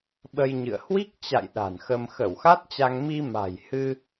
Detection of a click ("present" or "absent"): absent